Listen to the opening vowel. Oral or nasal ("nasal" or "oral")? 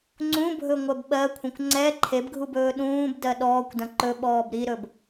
nasal